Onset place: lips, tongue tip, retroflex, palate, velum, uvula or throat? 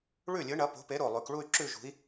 retroflex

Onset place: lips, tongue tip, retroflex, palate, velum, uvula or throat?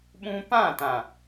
lips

